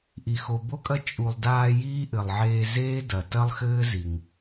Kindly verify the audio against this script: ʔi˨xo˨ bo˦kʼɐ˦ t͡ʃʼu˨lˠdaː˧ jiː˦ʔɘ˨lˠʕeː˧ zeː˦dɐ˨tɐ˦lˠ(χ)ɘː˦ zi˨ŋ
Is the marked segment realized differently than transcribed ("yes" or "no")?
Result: yes